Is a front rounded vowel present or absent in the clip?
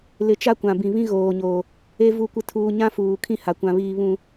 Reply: absent